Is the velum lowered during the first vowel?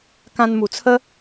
yes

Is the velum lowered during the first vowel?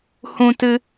yes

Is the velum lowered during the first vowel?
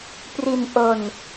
no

